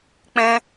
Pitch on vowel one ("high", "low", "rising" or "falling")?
high